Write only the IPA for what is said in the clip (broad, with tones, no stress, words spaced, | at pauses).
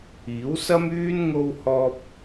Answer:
iː˨˥wsɐ˥myː˥n ŋo˥whɔː˥p̚